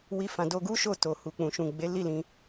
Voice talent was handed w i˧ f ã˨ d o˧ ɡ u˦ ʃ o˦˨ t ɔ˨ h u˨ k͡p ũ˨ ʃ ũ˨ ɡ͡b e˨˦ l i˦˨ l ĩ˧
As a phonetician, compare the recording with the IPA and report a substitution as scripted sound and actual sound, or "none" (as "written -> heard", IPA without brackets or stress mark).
ɔ˨ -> o˨